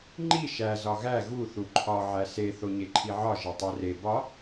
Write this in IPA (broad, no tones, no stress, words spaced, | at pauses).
ŋ͡ǃi ʃæ zɒɣæ ɣu θuǃʰɒ ʕæse θoɲeǃʰiʕɒ ʒetˤere bɒ